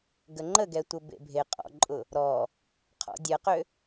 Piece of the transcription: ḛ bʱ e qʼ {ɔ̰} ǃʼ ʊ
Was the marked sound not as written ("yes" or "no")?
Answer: no